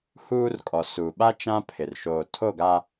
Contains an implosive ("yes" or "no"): yes